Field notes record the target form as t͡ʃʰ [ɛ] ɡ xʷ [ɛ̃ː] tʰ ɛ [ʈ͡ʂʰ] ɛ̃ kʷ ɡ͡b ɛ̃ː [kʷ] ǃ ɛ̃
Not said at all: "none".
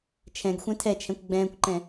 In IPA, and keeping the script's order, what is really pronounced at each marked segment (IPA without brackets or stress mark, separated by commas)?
ɛ̃, ɛ̃, t͡ʃʰ, kʷ